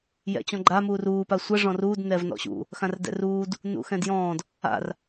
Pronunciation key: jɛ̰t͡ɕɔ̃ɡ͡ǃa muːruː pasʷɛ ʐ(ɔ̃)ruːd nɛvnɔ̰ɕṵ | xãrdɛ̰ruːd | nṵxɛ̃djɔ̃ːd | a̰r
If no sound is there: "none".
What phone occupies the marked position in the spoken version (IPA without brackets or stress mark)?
ɔ̃